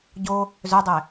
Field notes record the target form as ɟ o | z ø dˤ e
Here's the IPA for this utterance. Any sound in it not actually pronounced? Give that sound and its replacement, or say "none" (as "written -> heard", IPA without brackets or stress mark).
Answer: none